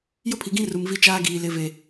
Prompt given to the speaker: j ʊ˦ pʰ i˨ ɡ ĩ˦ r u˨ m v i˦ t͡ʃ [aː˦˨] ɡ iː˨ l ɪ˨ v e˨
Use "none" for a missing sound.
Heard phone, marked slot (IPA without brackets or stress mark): aː˦